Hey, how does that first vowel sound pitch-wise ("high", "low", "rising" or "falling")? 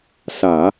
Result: low